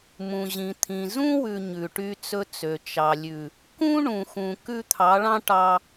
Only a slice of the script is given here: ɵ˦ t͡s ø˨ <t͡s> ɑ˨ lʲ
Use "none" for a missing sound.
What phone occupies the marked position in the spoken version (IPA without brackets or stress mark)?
t͡ʃ